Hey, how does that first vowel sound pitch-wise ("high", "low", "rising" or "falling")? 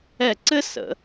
falling